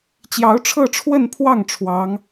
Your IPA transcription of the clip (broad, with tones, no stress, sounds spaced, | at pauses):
t͡ɕ j ɑ˧˥ ʊ̯ ʈ͡ʂʰ ɤ˥˧ ʈ͡ʂʰ w ə˥˧ n pʰ w ɑ˥˩ ŋ ʈ͡ʂʰ w ɑ˧˥ ŋ